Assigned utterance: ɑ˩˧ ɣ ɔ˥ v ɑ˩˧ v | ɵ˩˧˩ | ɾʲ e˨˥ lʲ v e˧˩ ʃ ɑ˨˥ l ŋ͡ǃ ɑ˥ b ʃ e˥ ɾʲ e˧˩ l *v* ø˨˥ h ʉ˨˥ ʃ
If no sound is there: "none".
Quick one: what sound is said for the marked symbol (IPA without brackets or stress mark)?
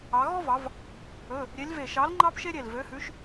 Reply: v